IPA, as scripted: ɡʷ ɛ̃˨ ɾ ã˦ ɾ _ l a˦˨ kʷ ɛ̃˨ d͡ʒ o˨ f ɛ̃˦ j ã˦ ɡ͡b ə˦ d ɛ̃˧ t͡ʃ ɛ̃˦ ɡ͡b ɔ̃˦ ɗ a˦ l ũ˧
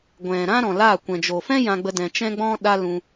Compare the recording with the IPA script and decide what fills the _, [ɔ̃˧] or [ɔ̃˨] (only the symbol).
ɔ̃˨